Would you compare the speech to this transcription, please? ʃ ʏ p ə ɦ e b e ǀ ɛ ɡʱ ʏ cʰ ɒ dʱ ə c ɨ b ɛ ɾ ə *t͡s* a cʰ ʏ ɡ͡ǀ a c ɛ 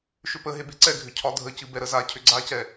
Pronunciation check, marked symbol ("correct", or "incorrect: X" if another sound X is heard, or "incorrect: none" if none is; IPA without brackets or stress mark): incorrect: z